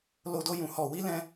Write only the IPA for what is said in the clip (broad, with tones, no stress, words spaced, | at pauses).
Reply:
lo˧do˧jũ˨ hɔ˨ wi˧lɛ̃˧